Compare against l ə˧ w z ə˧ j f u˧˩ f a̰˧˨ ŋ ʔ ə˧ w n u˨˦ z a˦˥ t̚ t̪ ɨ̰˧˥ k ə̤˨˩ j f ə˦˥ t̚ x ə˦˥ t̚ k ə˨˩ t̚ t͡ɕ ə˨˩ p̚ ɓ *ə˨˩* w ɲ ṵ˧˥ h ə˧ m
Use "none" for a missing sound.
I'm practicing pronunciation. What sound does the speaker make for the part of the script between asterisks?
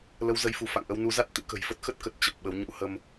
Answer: ə˨˦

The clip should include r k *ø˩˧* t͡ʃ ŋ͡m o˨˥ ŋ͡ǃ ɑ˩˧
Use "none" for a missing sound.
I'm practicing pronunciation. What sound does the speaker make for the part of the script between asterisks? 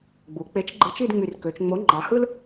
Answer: ø˩˧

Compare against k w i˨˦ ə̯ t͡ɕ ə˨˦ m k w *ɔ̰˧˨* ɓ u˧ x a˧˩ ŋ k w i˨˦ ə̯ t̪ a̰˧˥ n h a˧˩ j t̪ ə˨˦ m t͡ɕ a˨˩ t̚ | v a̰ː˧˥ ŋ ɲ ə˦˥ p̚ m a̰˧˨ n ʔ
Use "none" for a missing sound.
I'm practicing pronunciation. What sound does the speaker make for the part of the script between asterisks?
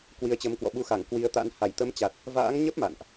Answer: ɔ̰˧˨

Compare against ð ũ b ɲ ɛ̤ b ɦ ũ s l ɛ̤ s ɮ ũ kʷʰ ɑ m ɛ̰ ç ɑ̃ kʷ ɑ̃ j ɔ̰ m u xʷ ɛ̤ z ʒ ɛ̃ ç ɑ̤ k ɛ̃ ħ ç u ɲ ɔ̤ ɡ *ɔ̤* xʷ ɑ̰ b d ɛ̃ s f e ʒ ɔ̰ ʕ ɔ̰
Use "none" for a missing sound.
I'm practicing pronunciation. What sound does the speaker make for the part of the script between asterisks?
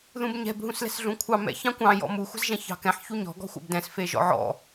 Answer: ɔ̤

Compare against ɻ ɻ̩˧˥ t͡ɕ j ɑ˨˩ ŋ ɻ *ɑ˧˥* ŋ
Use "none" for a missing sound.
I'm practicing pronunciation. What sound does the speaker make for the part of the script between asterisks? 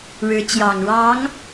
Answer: ɑ˧˥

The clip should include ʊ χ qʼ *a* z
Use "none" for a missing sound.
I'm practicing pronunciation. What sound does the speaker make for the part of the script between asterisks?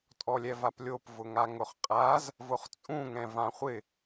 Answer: a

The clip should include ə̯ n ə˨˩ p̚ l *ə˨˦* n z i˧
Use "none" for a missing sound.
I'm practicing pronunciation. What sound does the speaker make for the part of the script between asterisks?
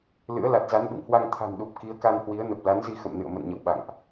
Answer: a˨˦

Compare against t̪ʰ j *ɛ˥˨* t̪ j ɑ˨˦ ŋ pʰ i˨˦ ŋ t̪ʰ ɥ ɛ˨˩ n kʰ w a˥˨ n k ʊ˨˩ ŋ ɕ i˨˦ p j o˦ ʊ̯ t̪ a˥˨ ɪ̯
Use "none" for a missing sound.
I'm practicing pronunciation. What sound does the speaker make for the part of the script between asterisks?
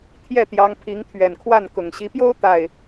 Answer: ɛ˥˨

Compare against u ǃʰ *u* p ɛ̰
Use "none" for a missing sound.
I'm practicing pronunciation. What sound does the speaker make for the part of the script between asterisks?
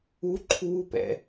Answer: uː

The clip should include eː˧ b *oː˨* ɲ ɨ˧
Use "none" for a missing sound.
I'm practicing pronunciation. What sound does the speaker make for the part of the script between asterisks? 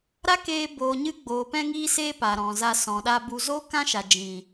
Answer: oː˨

